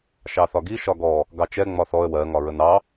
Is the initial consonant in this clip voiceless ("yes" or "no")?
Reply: yes